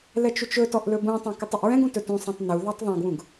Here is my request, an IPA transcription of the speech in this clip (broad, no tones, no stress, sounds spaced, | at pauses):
l ɛ t͡ʃ u t͡ʃ ɵ t ɔ ʔ l ɵ b ũ tˤ ɛ̃ k ɯ tˤ i ʔ ɹ ɛ̃ ɡ ũ t ɵ t ũ sˤ ɛ̃ tˤ n u ð ɑ tˤ ðˤ ɛ̃ ɡ w ũ ɡ